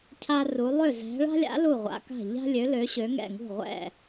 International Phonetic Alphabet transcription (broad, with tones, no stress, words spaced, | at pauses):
cʰa˥ru˨˥ lˠø˥˩zɛ̤˨˥ ɭa̤˥lʲa̰˨˥ lu˥˩ʁʷa̰˨˥ka̤˥˩ ʎa̤˥lʲø˨˥ lø˨˥ɕø˨˥ ŋɛ̰˥˩ŋṳ˥˩ ʁʷɛ̰˥˩